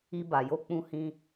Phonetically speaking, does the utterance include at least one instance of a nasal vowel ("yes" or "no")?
yes